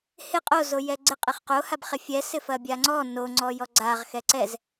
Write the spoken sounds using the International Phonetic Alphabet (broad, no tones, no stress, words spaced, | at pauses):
hɪ qʼo zojɛɡ͡ǀɪ qʼɪχqo habχɪfʲɛ sɪfɐbʲaŋ͡ǀɔ no ŋ͡ǀɔjɔɡ͡ǀaʁ xɛǀɛz